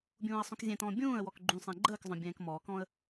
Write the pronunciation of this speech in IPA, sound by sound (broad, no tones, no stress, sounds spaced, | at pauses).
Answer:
bʲ ũː ə̯ sˤ ũ k zʲ ɛ̃ t ɔ̃ː bʲ ũː ə̯ w ɔ k ɡ͡ǃ ũ sˤ ɛ̃ ɡ͡ǃ əː k zˤ œ̃ bʲ ɛ̃ː k m ɔː k ɔ̃ ə̯